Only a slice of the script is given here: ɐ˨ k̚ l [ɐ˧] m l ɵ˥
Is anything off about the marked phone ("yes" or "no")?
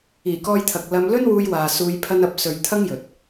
no